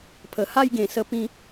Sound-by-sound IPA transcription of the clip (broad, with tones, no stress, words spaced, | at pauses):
pʰə˨˩ha˥˧jɡẽ˨˩ sə˧pĩ˧